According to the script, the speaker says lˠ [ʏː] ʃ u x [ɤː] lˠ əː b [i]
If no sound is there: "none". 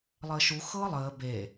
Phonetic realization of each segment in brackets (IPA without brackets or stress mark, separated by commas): əː, ɤː, e